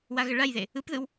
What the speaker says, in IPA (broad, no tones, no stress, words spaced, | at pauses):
waɣəɭajðe | ɯpðɯw